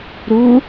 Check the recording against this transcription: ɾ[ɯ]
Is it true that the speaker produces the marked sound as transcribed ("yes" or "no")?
no